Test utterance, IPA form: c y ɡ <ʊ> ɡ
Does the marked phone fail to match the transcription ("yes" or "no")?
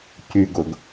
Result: no